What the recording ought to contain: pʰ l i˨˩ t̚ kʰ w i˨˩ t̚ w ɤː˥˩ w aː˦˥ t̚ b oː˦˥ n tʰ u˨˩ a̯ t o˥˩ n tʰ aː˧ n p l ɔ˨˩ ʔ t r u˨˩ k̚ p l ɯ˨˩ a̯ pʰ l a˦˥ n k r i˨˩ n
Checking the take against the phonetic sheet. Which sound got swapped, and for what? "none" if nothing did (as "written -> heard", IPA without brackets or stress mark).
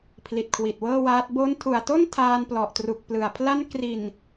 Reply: none